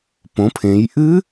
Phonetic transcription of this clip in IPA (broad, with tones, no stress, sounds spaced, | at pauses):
p õ˩˧ pʰ ẽ˩˧ j ʔ ɨ˦˥